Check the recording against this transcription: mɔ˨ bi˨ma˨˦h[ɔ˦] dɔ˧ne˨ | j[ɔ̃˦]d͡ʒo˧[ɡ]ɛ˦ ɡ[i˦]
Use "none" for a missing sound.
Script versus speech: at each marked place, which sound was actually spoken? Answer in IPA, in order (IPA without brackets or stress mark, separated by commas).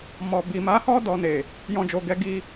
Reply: ɔ˦, ɔ̃˦, ɡ, i˦